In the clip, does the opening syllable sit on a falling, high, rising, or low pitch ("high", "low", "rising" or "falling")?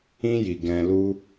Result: high